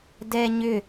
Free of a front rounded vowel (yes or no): no